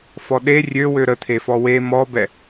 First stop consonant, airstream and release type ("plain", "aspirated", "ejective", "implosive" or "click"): implosive